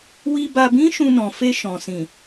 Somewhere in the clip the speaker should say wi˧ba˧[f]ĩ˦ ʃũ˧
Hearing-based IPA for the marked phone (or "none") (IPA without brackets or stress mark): b